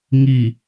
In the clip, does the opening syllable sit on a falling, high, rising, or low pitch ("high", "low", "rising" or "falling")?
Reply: low